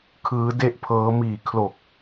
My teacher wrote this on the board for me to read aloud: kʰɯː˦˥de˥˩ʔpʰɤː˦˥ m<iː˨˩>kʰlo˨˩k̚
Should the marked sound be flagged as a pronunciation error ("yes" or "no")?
no